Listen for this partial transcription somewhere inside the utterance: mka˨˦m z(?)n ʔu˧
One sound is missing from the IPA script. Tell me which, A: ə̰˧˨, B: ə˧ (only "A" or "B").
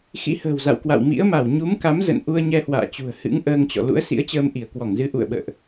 A